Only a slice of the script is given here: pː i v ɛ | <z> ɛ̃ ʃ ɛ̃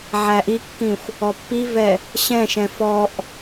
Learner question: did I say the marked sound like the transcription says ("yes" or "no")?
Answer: no